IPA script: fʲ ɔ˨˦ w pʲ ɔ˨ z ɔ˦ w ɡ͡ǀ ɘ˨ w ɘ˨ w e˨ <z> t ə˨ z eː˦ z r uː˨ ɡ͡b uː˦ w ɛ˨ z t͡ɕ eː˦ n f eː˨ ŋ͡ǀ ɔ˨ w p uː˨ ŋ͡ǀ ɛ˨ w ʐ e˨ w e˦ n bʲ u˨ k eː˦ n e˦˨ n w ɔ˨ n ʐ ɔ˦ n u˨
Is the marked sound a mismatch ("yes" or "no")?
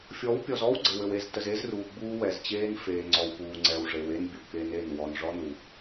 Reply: no